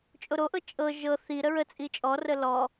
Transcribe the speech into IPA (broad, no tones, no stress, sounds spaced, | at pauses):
t͡ʃʼ o ɾ o ʔ ɤ t͡ʃʼ ɤ ʒ ɤ θ i ɾ ə ɹ ə t͡sʼ i t͡ʃʼ ɔ r ə l ɔ